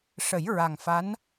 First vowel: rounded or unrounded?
unrounded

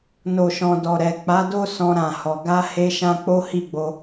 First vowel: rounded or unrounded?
rounded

